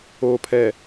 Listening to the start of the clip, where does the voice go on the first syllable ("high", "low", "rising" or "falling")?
low